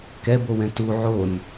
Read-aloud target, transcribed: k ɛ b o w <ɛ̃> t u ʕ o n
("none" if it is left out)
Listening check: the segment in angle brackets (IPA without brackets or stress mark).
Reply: ɛ̃